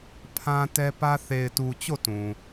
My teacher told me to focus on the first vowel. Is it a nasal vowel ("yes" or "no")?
yes